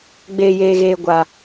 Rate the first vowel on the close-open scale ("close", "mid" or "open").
mid